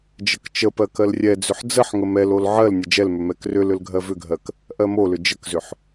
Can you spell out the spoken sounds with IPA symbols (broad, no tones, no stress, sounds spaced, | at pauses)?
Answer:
d͡ʒ ə k t͡ʃ ə p ɜ k ɜ l rʲ ɛ d͡z ʏ ħ d͡z ə ħ ŋ ə m ɛ l o l ʕ ɜ l nʲ ə d͡ʒ ɛ l m ʏ m ɛ k r ʏ l ʏ l ɡʱ ɜ v ʏ ɡʱ ɜ k | ʔ ɜ m o l ʏ d͡ʒ ə k z ʏ ħ